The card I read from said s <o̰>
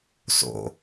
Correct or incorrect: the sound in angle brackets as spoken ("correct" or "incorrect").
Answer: correct